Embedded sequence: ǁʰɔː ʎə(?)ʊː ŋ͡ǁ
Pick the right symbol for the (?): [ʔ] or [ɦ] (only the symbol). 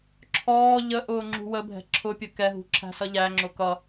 ʔ